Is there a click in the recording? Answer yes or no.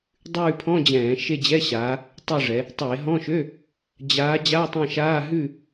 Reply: no